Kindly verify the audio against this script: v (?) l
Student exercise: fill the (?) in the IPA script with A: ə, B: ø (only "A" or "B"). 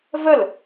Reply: A